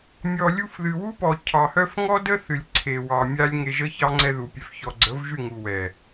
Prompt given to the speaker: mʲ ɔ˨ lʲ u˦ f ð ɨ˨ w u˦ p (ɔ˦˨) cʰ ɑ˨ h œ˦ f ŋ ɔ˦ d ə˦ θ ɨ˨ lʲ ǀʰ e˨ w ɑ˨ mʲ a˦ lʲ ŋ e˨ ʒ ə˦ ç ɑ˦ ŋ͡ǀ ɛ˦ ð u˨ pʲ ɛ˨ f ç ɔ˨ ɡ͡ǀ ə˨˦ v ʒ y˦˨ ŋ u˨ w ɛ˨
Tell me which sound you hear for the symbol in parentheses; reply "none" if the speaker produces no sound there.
ɔ˨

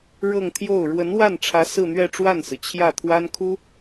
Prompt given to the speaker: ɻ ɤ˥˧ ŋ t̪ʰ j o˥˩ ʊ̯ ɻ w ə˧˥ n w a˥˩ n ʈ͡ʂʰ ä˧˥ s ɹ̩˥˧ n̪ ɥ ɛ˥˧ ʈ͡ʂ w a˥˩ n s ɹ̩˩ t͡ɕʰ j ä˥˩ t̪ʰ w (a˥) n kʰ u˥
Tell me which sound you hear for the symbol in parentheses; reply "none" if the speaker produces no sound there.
a˥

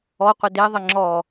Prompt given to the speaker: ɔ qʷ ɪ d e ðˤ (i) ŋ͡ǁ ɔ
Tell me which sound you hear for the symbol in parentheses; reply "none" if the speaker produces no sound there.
ɪ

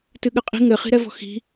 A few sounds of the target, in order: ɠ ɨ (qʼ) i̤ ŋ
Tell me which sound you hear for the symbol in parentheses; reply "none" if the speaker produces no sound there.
qʼ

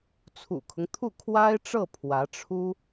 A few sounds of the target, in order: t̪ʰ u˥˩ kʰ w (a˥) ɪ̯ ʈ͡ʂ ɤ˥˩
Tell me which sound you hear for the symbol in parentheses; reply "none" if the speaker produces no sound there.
a˥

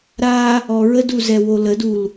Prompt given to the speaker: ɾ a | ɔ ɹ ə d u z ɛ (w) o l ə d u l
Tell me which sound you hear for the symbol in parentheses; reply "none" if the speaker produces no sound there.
w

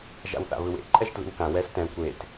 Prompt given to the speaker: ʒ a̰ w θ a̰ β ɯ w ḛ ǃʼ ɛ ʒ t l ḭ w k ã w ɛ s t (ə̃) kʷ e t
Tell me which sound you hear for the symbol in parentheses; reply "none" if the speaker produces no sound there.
ɛ̃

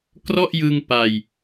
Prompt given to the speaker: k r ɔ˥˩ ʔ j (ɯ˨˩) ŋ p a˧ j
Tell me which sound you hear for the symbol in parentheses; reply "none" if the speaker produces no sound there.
ɯ˧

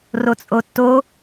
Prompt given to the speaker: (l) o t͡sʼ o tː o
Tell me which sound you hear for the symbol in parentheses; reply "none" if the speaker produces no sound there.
r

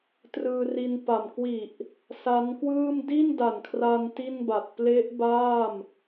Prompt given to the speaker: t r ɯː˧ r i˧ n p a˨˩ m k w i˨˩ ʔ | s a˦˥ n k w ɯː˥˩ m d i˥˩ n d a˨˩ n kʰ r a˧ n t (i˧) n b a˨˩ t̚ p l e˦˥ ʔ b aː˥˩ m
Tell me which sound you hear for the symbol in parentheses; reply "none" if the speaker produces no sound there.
i˥˩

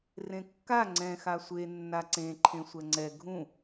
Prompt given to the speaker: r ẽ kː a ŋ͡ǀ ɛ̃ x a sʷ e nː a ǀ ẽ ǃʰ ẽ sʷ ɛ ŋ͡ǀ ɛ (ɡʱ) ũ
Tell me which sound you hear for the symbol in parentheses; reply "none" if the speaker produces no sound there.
ɡʱ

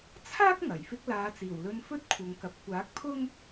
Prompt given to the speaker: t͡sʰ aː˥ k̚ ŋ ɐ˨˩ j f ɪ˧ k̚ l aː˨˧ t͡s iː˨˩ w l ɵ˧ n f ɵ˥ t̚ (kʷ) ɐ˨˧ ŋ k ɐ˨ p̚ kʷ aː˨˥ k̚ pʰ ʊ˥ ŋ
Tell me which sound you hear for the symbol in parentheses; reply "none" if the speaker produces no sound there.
kʷʰ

